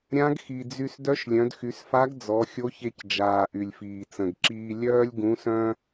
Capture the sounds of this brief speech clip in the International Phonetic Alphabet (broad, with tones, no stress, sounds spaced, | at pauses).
ɾʲ ã˧˥ ɡ x i˩ d͡z y˧ s d œ˧˥ ʃ lʲ œ̃˩˧ d x y˩˧ s f a˧˥ ɡ d͡z ɔ˩˧ xʲ o˧˥ ç e˧ c d͡ʒ aː˩ ʔ y˩ lʲ f iː˩ t͡s ə̃˩ ɡ ǁ iː˧ lʲ œː˥ lʲ ɡ ũ˧˥ s œ̃˥